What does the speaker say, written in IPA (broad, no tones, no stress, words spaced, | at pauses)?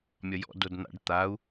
mʲɒjɔ̰ dodn̪a̰ɖ t̪au̯